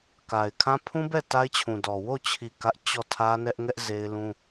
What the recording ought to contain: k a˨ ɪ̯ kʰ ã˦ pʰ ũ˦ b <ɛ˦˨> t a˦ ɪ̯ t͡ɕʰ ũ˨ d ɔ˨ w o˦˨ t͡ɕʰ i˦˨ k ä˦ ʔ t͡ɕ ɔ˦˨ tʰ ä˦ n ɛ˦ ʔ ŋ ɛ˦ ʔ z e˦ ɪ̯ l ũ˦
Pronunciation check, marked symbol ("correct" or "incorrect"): correct